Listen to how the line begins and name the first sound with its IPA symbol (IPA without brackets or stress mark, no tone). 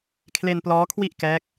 kʰ